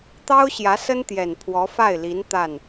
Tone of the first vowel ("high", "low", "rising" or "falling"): high